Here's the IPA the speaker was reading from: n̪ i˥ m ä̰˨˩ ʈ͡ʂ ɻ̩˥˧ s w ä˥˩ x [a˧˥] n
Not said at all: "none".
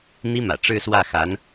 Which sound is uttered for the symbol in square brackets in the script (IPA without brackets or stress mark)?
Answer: a˧˥